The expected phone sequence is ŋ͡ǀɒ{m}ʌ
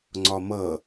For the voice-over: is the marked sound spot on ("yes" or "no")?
yes